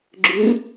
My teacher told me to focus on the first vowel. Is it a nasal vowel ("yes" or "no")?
no